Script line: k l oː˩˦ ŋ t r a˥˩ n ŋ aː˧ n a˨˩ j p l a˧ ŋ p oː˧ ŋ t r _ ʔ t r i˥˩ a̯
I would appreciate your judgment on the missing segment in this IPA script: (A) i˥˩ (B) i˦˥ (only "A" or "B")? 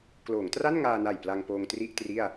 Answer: A